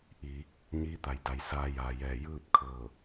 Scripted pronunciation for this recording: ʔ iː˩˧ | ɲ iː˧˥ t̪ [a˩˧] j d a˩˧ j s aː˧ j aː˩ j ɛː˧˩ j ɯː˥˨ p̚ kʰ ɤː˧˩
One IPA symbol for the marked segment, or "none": a˩˧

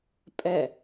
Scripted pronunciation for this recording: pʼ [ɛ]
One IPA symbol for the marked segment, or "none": ɛ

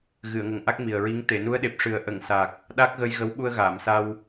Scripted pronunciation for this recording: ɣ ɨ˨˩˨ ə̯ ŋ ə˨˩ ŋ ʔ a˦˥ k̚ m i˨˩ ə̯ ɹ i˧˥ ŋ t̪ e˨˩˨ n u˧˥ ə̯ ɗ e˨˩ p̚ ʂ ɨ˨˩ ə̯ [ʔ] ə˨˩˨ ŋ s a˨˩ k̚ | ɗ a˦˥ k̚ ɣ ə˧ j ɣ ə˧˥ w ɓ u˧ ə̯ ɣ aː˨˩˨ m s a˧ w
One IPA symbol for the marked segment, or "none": ʔ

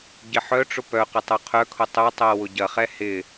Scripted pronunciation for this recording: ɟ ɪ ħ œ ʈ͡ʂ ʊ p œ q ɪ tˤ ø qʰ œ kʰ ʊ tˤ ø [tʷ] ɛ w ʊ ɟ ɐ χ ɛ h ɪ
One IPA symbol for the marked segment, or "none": tˤ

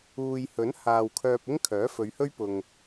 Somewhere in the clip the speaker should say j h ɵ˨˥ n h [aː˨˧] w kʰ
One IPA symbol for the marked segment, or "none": aː˨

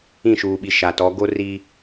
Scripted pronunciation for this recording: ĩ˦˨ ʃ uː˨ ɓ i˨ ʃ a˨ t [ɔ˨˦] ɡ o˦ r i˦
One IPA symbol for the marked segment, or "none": ɔ˨˦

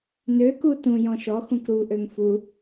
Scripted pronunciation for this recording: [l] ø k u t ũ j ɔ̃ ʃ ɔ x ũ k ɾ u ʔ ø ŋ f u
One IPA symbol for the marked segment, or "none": n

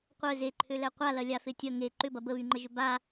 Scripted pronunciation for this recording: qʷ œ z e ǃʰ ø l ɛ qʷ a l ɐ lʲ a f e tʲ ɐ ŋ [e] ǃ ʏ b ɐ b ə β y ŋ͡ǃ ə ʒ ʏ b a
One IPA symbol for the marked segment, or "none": e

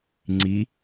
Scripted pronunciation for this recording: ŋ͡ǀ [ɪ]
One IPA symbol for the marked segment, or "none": i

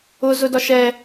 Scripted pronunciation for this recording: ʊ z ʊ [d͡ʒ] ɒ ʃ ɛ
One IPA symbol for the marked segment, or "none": d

